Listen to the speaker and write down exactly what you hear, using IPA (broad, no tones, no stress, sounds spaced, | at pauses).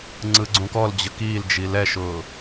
ŋ͡ǀ ɯ ɡ͡ǀ ũ k ɔ l d͡ʑ ə k i l d͡ʒ i l ɛ ʃ ʊː